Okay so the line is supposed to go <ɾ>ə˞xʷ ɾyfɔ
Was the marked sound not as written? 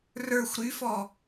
yes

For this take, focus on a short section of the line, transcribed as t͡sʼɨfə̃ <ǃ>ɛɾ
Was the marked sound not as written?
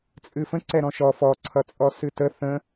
yes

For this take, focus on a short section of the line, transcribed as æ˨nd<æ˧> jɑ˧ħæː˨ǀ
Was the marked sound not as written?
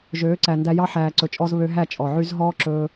no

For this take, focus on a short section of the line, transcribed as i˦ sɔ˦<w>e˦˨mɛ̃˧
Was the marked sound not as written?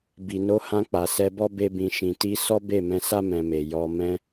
yes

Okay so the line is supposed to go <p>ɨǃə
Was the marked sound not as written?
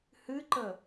yes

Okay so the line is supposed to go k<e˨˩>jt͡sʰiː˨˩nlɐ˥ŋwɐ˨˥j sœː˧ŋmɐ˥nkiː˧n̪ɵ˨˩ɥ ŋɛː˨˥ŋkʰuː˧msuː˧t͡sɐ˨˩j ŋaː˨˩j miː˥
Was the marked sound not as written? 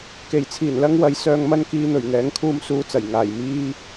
no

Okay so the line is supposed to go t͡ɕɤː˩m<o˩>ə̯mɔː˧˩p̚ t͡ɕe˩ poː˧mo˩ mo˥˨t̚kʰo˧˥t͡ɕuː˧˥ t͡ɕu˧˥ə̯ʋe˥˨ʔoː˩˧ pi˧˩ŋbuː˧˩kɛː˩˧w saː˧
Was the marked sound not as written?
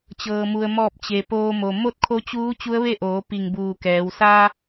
yes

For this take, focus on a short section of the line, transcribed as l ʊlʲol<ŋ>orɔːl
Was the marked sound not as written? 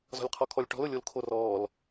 yes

